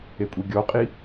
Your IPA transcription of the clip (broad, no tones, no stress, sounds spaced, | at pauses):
e kʷʼ i ɡʲ ɔ qʼ i